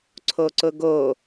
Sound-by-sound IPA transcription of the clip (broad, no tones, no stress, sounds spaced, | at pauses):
ǀʰ o ǀ ʊ ɡ o